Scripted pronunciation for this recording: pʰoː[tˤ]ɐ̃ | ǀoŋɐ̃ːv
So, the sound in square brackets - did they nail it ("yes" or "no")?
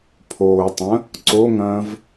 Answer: yes